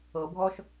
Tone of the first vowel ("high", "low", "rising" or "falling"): low